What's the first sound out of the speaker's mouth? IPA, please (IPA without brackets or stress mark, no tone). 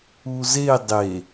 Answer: u